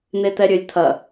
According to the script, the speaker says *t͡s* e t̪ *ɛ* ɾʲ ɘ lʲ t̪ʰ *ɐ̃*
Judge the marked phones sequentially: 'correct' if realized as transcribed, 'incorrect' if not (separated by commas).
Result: incorrect, correct, incorrect